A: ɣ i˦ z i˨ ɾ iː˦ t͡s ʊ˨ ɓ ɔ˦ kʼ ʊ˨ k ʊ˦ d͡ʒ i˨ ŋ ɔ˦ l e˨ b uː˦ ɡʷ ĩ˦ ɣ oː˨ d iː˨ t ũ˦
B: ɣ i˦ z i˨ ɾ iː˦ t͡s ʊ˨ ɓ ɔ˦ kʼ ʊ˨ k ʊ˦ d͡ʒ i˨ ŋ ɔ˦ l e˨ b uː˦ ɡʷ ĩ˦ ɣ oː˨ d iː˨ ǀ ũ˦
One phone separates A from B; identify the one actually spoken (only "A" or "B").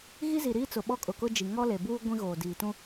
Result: A